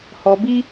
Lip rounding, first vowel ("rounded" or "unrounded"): rounded